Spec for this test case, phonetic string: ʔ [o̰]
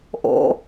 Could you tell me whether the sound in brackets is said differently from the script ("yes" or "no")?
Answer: no